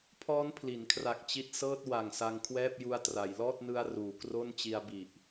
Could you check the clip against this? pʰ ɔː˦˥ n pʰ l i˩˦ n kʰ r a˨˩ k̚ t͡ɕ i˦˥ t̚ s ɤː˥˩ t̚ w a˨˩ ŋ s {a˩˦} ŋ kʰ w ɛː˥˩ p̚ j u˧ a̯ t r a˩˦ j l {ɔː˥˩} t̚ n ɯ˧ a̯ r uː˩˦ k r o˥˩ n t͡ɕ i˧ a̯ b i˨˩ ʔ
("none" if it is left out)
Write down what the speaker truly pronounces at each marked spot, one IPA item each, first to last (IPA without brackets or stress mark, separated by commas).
a˧, ɔː˥˩